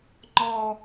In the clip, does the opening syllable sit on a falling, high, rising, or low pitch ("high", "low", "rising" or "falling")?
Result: high